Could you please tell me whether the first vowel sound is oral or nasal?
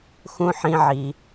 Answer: nasal